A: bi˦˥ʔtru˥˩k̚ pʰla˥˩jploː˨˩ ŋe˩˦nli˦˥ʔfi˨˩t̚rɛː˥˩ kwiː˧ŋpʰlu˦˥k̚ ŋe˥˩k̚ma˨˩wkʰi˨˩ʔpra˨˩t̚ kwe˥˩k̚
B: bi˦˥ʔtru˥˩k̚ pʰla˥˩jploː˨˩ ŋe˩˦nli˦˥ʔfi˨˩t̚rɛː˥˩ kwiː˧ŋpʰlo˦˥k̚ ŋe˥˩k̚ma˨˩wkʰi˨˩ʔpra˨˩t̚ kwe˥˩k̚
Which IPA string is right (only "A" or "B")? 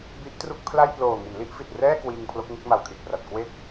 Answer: B